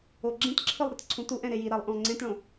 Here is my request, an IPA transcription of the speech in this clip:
o ɡ͡ǁ ẽ t ǁʰ ɯ lˠ ɾ ɛ t ǀʰ ũ t u ʔ ɛ̃ ɾ e j i ɾ a lˠ ʔ õ lˠ ŋ͡ǀ ẽ t ɭ õ

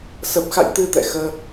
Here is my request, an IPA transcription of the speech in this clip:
s ə˨˩ p̚ x a̰˧˨ j t̪ ɨ˧ t̪ ɛ̰˧˨ x əː˧

